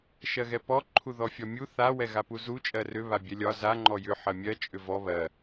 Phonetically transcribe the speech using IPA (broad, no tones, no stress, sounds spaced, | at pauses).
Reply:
ʃ ɜ ɣ ɛ p ɔ ǃʰ u ð ɔ fʲ ɒ mʲ u θ a w ɛ ɣ a p u z u t͡ʃʼ ɜ r ʏ β a bʲ ɛ lʲ ɒ z a ŋ͡ǃ ɔ j ʏ ħ ɜ mʲ ɜ t͡ʃʼ ʏ v ɔ β ɜ